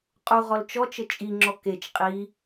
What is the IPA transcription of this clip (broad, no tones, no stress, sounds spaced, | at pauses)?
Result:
qʼ u ʁ ɔ l t͡ʃ ɔ t͡ʃ ə t͡ʃʼ i ŋ͡ǁ ɔ k e t͡ʃ qʼ i